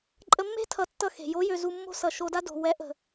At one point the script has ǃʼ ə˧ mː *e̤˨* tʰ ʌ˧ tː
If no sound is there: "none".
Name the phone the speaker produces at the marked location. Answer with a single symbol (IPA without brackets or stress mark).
e̤˦